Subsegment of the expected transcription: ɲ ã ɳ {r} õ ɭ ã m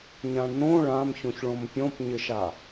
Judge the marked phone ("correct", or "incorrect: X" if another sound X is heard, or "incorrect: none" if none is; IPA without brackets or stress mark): incorrect: n